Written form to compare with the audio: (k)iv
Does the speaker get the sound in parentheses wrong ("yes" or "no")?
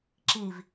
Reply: yes